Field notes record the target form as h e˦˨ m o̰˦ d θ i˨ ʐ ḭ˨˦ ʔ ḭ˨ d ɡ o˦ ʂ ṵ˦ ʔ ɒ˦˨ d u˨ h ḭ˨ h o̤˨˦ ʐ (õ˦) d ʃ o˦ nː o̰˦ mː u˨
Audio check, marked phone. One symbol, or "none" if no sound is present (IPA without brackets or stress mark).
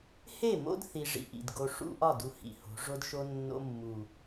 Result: o˦